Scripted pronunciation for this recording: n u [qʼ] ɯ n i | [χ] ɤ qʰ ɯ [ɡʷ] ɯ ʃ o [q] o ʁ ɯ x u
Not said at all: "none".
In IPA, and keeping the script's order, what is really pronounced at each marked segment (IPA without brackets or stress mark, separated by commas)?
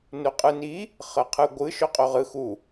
qʼ, χ, ɡʷ, qʼ